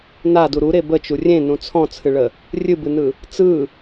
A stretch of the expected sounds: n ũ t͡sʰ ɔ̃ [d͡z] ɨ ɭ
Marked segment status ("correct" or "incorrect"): incorrect